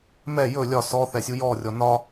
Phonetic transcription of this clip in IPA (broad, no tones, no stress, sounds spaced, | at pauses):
m ɛ j ɵ lʲ ɒ s ɔ θ ɛ sʲ u j ɔ rʲ ɔ n ɒ